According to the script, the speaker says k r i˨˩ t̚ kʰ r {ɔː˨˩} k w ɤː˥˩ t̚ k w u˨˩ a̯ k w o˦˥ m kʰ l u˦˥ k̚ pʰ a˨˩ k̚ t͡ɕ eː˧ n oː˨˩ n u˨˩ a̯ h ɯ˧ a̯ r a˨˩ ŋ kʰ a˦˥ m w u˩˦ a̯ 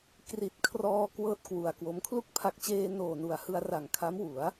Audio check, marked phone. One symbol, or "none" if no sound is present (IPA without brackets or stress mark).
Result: ɔː˧